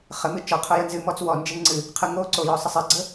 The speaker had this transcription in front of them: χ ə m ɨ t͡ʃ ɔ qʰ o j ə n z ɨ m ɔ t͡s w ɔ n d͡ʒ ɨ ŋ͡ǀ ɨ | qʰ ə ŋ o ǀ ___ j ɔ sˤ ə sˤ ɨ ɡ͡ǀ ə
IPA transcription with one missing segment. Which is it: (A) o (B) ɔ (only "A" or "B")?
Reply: A